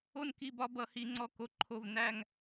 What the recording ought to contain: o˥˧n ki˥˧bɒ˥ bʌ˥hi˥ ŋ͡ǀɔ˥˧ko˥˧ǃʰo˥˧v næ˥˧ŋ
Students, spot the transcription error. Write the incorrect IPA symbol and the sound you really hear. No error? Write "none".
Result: none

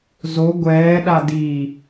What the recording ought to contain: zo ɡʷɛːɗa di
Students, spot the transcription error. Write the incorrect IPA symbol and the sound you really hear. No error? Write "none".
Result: none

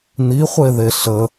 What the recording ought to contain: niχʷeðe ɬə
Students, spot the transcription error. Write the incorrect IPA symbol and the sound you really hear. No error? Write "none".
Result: none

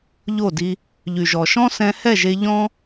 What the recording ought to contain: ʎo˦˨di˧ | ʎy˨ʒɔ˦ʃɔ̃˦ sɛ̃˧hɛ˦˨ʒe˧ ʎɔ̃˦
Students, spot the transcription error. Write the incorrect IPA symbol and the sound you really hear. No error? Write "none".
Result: ɔ˦ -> ɔ˨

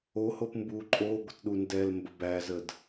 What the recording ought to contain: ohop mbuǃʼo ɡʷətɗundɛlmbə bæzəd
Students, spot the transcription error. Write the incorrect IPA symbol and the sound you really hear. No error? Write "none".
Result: none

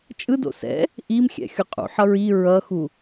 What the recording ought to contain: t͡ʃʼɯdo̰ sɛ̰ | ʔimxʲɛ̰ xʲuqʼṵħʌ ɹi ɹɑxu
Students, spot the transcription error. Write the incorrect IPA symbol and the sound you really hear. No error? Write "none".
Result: ɑ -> ʌ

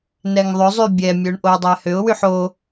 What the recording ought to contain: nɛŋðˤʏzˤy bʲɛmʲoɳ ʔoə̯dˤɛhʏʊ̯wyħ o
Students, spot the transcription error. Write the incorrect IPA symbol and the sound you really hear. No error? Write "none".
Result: none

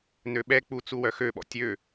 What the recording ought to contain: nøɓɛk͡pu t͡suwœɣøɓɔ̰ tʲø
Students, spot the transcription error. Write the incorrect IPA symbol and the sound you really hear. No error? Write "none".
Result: ɣ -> x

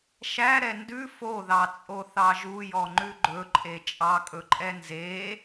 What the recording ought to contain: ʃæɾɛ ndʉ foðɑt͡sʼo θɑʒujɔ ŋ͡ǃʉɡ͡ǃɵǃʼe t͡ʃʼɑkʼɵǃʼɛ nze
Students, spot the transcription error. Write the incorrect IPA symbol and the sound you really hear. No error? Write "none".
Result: none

